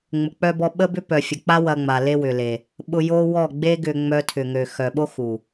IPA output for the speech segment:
ŋ͡m ʊ˨ k͡p œ˧ b ɔ˧ ɓ ə˦ b ʏ˦ p œ˨ fʲ ə˨ k͡p a˦ w ɐ˧ ŋ͡m a˨ l e˦ w ʏ˨ l e˨ | ɓ ʊ˧ j o˦ w ɔ˦˨ ɡ͡b e˦ ɡ ʏ˧ ŋ͡m œ˧ tʰ ʏ˨ ŋ ø˨ x œ˨ ɓ o˦ x u˨

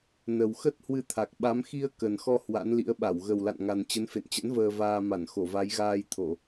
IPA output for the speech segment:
n ə˨˩ w x ə˦˥ t̚ h w ɨ˧ t̪ʰ a˨˩ k̚ ɓ a˨˦ m x i˧ ə̯ k ə˨˩ n x ɔ˧ h w a̰˧˥ n l ḭ˧˥ ə̯ ɓ a˧˩ w ɣ ə˨˩ w l a̰˧˨ n ŋ a˨˩ n t͡ɕ ə˨˦ n f ḛ˧˨ n t͡ɕ ə̰˧˥ n v əː˧ v aː˧ m a˧˩ n x o˧˩ v a˨˦ j ɣ aː˧ j t̪ʰ o˧˩˨

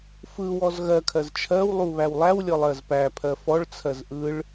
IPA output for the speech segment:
f ɯ w ɔ z ɣ ɜ kʰ ɜ z t͡ʃʰ ɜ w lˠ u β æ w lˠ æ w lʲ ɔ lˠ ɜ z p æ pʰ ɜ f ɔ ɭ t͡sʰ ɜ z ʔ ɯ ɭ

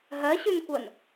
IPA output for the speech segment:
ɦ ɜ ɕ ʉ n kʷ ɜ n

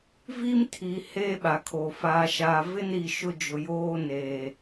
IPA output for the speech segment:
v i˦ m tʰ i˨ h eː˦ ɓ a˨ kʰ o˨ f aː˨ ʃ aː˨ v ɪ˦ n ɾ i˨ ʃ ʊ˦ d͡ʒ ʊ˨ j oː˦ n eː˨

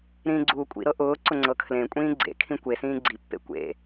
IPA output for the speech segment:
ɾ ĩː ɡ͡ǀ uː kʷʼ ḭ ɾ ɤ ʔ ʊː ǀ ʊ ŋ͡ǀ ɤ kʰ l ẽ kʷʼ ĩː ɡ͡ǀ ḛ kʰ ĩ kʷ e s ĩː ɡ͡ǀ i pː ḛ kʷ ḛ

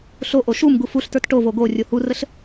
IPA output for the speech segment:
ɬ o ʔ o ʃ u m ɡ u f u ɬ t ə˞ t ʈ o v o ɡ o rʲ o h u r ə ɬ

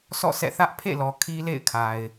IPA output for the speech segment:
sʰ ɔ̰˦˨ s ɛ̰˦˨ θ ä˦ ʔ pʰ ḛ˦˨ l ɔ˨ kʰ i˦ l ḛ˦˨ ɪ̯ kʰ a˨ ɪ̯

